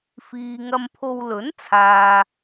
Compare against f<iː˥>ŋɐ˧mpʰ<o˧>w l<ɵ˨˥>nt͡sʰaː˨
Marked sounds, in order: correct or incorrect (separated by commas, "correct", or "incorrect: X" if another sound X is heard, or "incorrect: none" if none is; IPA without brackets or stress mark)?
incorrect: iː˨, correct, correct